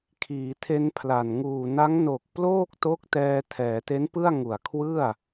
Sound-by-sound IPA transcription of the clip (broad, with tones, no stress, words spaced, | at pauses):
kʰiː˩˦tʰe˧npʰla˨˩n ŋuː˨˩na˦˥ŋ no˨˩k̚ ploː˥˩k̚to˦˥k̚tɛː˧ tʰɛː˩˦te˦˥npɯ˥˩a̯ŋu˨˩a̯ kʰwɯ˥˩a̯